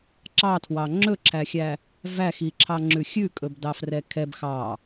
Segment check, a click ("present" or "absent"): present